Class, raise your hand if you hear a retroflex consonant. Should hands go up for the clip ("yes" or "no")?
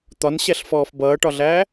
yes